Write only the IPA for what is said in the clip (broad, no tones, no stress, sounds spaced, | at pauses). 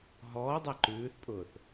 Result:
ɦ ɔː dˤ a ǃ ʉː θ pʼ ʊː θ